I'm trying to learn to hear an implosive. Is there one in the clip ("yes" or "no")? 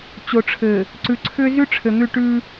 no